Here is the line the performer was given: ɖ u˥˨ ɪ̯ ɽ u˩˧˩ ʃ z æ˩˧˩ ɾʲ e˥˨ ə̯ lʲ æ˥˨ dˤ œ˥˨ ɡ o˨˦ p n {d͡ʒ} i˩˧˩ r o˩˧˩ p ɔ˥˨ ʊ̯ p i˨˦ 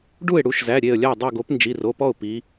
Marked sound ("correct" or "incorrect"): correct